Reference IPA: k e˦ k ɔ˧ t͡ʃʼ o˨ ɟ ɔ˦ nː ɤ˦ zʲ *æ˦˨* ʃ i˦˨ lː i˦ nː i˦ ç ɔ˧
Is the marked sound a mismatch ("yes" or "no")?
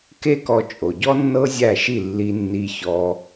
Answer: no